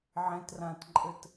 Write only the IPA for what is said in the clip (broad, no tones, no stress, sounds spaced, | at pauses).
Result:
ʕ ẽ t r ã t ǃʼ ɘ t